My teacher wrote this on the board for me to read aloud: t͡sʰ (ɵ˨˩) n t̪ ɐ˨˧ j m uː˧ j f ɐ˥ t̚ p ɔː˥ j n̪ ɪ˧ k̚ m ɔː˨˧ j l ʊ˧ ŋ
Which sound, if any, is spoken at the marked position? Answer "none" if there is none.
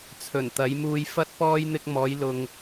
ɵ˨˩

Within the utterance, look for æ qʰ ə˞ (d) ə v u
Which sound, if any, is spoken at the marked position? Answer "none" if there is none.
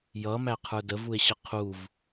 d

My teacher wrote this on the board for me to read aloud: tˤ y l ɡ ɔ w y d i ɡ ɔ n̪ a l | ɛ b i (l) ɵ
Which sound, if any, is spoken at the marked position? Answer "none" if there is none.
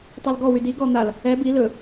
l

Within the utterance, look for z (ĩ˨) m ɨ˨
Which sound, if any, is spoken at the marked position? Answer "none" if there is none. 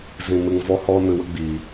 ĩ˨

